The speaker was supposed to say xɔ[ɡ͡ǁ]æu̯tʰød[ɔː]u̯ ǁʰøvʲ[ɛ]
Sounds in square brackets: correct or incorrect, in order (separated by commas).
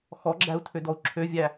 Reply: correct, incorrect, incorrect